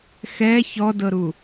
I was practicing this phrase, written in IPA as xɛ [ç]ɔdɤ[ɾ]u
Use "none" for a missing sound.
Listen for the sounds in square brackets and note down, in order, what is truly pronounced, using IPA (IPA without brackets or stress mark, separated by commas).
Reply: ç, ɾ